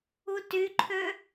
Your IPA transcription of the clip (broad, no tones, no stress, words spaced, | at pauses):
utyǃʰø